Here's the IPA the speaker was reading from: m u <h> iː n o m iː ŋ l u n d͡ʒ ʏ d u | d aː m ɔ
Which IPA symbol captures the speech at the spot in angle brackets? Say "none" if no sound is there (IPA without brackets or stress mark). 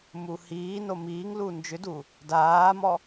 h